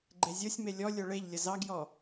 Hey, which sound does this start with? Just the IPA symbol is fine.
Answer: ɡ͡ǃ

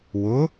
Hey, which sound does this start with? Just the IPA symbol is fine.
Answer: w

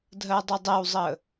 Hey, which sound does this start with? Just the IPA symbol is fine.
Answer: dʱ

